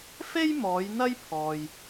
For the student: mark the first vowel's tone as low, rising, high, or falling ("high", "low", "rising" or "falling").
high